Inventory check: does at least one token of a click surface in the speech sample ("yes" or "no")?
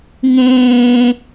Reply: no